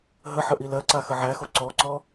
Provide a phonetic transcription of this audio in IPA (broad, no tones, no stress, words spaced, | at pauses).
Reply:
ɦəħəʔi lɜǀaxə ʕæxo ǀɔǀɔ